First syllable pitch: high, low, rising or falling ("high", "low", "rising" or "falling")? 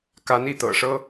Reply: rising